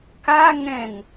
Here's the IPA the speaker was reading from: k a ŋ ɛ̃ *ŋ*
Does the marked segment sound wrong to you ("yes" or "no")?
no